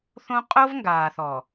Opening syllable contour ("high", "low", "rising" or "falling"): high